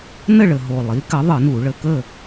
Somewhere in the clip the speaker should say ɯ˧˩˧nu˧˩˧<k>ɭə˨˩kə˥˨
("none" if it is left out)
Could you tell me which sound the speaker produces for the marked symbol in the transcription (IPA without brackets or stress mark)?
none